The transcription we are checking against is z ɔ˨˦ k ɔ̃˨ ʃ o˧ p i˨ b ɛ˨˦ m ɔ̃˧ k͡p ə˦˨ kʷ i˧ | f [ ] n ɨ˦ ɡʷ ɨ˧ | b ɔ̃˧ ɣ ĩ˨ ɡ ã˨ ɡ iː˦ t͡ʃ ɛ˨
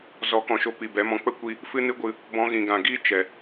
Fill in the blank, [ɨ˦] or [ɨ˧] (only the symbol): ɨ˦